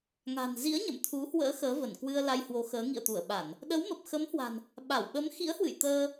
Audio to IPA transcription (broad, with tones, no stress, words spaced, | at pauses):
ŋa̤˨˩nzḭ˧˥ə̯ ɲə̰˧˨mt̪ʰu˨˦hwə̰ː˧˥ xəː˨˦və˧˩nkwɨ˧ə̯la˧j hwo˨˦xəː˨˦ ŋḭ˧˨ə̯t̪u˧˩ə̯ɓa˧˩˨n | ɗə˨˦wmə˨˩p̚xə˨˦mhwa̤˨˩n | ɓa˧˩w ɓə˨˦mxḭ˧˥ə̯hwɨ̰˧˨j t̪əː˧